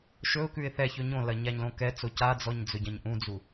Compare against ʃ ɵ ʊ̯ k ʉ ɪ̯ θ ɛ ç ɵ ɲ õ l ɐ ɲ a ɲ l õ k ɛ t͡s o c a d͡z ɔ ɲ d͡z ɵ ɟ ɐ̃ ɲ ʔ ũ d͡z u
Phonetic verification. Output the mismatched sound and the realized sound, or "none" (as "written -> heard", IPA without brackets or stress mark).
none